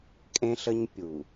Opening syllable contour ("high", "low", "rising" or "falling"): high